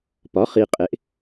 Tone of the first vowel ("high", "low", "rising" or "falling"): rising